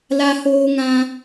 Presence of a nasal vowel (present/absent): present